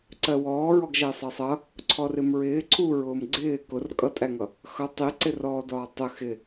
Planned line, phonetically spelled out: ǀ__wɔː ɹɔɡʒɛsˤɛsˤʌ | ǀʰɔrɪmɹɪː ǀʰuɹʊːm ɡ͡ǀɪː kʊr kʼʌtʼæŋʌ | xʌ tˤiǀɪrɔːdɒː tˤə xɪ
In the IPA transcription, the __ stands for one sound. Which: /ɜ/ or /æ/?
ɜ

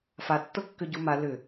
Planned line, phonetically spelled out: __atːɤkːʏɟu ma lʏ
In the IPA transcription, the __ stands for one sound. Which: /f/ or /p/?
f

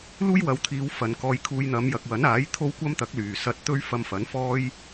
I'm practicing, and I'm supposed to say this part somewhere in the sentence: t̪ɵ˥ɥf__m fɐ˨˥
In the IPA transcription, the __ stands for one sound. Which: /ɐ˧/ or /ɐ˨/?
ɐ˧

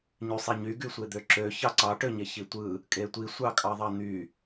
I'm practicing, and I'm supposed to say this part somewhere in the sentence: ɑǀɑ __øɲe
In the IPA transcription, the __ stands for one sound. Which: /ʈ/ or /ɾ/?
ʈ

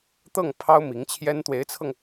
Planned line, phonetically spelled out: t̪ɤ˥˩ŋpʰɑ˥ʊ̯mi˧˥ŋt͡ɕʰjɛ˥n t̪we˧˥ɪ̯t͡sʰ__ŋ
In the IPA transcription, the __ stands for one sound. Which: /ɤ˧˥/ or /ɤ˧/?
ɤ˧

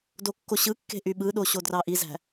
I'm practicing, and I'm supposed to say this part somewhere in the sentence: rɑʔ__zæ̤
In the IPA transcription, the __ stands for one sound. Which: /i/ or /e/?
i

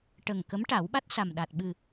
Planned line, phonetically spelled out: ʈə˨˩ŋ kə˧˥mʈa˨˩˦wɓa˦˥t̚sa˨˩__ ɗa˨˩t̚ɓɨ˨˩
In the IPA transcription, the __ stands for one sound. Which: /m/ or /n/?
m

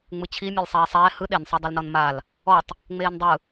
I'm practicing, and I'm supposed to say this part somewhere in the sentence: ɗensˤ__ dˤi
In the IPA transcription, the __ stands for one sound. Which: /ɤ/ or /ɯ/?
ɤ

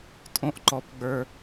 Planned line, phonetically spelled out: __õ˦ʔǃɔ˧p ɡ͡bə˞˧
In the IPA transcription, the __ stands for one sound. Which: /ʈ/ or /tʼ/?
tʼ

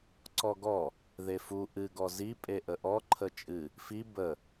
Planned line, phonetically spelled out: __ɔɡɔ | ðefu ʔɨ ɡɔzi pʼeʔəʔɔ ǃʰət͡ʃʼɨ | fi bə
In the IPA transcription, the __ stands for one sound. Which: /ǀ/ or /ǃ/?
ǀ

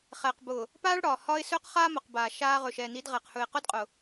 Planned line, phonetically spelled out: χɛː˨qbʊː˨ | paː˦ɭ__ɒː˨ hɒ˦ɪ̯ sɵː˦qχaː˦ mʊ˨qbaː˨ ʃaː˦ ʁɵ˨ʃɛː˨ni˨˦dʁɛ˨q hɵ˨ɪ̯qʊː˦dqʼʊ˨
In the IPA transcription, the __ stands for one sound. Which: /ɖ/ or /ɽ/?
ɽ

